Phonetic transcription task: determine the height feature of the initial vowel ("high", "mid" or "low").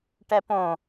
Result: mid